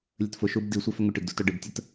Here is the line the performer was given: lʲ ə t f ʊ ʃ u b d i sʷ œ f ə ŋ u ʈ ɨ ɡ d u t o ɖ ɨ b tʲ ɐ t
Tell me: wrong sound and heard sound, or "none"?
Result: ɐ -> ə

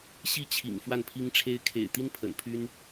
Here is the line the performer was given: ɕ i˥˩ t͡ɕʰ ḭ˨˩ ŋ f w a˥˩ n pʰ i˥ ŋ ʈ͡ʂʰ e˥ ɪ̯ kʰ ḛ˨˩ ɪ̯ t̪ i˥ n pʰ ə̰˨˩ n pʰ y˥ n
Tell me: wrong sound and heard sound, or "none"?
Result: none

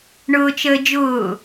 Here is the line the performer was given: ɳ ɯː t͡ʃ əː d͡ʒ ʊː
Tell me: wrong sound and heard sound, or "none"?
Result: ɯː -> ʊː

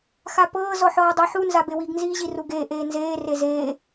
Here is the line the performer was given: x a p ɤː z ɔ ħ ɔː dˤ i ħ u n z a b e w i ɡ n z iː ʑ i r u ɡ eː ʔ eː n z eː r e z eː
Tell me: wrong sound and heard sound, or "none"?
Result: none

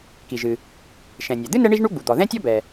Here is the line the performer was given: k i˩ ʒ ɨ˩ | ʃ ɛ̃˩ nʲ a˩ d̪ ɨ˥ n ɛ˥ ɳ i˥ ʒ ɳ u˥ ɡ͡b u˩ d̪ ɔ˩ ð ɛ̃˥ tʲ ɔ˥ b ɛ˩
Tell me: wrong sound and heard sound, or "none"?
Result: none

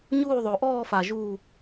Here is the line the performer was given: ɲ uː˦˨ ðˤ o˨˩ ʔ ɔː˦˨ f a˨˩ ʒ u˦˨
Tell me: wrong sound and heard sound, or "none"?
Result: none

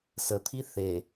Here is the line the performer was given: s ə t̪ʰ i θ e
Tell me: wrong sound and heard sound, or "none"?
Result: none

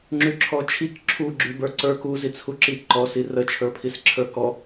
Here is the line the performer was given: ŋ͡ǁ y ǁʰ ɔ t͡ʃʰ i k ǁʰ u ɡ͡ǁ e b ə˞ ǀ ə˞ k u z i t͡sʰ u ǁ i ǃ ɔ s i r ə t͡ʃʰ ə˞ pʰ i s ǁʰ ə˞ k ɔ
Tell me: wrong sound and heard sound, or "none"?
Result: e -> y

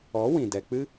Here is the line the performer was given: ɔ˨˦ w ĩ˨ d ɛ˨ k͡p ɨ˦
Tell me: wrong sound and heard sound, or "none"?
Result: none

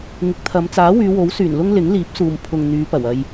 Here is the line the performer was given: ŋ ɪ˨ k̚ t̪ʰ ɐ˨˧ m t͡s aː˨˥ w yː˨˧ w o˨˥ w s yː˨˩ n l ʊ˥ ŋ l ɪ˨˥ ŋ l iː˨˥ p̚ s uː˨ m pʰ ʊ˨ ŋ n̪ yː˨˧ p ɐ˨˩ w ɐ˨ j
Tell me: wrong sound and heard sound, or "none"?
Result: none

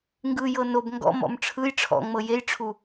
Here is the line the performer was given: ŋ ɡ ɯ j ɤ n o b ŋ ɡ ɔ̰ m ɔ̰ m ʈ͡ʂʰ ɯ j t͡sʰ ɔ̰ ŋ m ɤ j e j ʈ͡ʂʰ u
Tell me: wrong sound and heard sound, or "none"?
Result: t͡sʰ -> ʈ͡ʂʰ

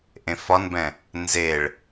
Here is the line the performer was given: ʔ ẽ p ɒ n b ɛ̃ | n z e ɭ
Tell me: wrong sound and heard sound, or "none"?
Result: p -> f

